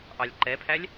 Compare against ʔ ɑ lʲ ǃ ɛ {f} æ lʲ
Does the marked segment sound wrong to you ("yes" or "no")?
yes